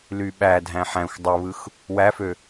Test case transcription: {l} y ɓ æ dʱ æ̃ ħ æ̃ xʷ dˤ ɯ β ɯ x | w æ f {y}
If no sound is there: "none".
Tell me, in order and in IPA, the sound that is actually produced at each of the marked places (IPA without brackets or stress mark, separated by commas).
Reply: l, ø